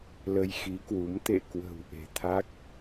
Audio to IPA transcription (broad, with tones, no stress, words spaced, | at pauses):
lə˧jxi˨˦kwu˨˦m t̪ḛ˧˨kwə̤˨˩w ʔe̤˨˩t̪ʰa˦˥k̚